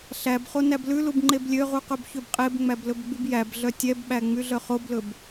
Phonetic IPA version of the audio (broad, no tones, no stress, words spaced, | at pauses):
ɬæbχo næblʉlub ŋ͡ǃeblʲøʁu qɵbçøbqʼebŋ͡mæb lɵbɡ͡bybjæbɮœ tʲɛbɓæ ŋ͡myɮœχoblɵb